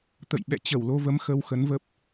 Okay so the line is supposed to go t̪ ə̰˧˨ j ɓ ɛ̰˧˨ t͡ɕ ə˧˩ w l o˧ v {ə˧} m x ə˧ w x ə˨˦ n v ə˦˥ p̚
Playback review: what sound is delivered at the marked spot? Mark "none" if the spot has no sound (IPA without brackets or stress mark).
ə˧